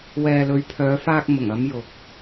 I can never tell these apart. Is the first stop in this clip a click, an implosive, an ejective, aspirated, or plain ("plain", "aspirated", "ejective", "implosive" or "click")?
aspirated